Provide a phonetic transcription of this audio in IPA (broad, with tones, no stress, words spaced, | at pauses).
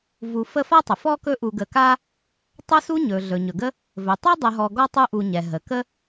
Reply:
vu˨ fə˦fa˥tˤə˩ fɔ˥ kɵ˦ʔu˨ɡə˨ka˥ | tˤɵ˦su˦ ɲɵ˩ ɮɵ˩ɲɵ˩ɡə˦ | vɵ˩tˤɵ˥dˤə˨ɦɔ˨ ɡɔ˥tˤu˦ʔu˨ɲɛ˩ ɦə˩kə˦